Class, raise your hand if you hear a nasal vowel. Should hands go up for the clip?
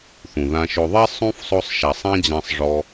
yes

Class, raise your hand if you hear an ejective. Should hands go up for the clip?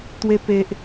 no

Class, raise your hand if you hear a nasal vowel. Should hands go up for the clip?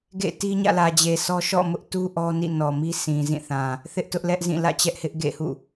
yes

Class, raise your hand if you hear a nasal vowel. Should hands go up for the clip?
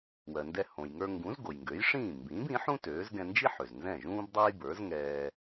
yes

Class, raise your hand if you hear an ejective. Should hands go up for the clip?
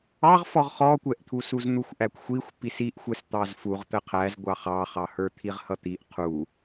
no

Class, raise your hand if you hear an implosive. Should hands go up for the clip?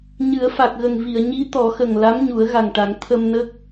no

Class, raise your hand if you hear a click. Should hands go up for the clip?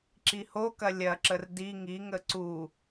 yes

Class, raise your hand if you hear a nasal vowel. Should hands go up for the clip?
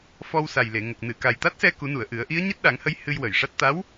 no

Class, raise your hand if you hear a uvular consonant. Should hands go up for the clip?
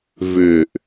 no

